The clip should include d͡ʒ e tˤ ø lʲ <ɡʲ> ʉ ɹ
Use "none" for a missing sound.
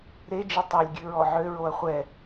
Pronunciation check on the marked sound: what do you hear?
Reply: ɡʲ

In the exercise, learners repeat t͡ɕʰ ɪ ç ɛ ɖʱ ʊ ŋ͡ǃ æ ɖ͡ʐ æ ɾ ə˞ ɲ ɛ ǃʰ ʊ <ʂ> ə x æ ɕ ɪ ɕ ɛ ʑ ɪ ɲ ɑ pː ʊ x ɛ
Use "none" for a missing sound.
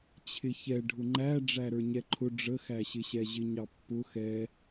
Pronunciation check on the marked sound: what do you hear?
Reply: ɖ͡ʐ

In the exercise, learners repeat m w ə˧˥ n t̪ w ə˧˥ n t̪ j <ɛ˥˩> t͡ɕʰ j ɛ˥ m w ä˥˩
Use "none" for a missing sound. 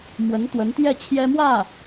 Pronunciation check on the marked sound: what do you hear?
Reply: ɛ˥˩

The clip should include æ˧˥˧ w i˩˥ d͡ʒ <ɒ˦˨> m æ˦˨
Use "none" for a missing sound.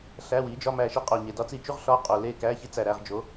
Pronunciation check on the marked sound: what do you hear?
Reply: ɒ˧˥˧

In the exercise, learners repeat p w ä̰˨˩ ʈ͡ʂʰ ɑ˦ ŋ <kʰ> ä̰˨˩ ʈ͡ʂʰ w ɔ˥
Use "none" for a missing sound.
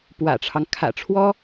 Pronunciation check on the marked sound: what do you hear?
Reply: kʰ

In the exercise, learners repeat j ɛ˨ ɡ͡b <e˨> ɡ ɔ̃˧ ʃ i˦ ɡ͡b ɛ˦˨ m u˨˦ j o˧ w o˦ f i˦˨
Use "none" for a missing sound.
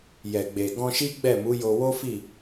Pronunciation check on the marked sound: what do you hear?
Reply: e˨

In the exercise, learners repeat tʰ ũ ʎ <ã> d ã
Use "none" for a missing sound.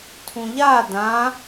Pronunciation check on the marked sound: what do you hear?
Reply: a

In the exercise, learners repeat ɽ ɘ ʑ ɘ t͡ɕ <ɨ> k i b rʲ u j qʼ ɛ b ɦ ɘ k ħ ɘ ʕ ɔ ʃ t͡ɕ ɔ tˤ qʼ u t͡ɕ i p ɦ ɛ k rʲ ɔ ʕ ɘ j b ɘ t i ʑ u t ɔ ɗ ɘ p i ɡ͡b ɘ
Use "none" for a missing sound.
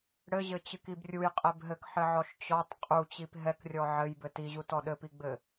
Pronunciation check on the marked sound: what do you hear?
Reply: ɨ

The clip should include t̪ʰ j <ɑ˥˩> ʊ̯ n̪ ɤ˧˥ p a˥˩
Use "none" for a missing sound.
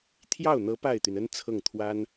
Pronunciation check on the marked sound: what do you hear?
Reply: ɑ˥˩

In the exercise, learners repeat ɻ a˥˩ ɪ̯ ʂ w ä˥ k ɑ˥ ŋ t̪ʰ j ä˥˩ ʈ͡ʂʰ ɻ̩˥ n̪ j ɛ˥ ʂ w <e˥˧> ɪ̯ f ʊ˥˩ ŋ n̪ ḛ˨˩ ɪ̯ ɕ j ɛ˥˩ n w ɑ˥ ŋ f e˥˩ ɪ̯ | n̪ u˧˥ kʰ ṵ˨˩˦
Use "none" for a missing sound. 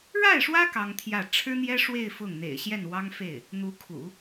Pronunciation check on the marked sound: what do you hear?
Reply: e˥˧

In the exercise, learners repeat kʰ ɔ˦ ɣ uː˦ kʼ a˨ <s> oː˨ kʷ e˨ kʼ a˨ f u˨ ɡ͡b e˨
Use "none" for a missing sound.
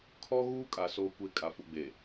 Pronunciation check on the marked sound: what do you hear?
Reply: s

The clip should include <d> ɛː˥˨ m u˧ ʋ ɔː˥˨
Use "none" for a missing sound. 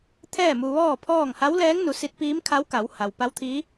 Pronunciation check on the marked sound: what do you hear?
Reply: t̪ʰ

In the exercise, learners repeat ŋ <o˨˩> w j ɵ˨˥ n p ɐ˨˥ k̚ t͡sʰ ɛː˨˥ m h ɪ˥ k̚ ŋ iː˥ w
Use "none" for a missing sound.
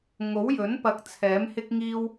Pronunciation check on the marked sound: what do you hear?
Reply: o˨˥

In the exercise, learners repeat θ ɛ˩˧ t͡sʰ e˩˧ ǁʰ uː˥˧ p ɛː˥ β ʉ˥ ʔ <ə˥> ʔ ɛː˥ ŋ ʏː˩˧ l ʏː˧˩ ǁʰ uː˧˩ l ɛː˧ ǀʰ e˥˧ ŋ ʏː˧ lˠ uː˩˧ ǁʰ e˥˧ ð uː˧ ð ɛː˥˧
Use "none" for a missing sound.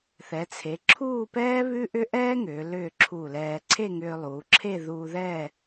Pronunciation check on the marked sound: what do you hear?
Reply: ʏ˥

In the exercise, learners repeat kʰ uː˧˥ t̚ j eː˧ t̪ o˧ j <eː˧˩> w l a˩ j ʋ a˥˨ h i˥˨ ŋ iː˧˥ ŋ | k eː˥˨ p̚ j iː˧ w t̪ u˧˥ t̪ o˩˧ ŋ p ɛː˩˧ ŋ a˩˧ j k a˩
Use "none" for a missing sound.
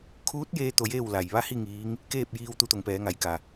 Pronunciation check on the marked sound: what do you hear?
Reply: eː˥˨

